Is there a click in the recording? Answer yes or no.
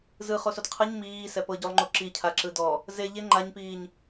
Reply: yes